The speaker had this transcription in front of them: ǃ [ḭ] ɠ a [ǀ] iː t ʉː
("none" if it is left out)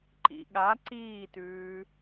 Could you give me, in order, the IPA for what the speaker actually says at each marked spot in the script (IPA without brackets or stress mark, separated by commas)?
ḭ, ǀ